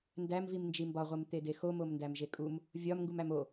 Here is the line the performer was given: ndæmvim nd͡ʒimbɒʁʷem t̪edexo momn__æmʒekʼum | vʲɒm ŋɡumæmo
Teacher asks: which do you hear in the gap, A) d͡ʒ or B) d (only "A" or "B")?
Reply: B